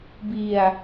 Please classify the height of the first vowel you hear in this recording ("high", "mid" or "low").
high